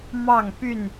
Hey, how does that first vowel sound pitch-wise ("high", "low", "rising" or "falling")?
falling